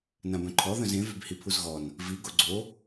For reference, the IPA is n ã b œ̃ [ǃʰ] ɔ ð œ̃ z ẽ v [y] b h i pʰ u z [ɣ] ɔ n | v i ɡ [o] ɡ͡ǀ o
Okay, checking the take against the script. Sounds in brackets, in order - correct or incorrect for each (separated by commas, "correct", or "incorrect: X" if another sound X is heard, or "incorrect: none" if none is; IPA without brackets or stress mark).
correct, correct, correct, correct